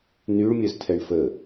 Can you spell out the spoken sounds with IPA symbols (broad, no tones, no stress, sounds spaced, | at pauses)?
n y ɭ mʲ œ z tʰ ɛ ɳ f ə